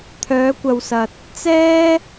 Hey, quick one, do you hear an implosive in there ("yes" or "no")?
no